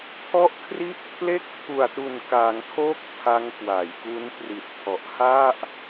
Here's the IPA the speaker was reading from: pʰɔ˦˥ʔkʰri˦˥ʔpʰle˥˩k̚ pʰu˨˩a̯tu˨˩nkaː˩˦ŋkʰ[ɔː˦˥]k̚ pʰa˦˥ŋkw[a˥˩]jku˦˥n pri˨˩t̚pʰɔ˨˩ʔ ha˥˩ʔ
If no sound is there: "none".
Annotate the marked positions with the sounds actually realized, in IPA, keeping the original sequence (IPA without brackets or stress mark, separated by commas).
oː˦˥, a˩˦